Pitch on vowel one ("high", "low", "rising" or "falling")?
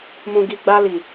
low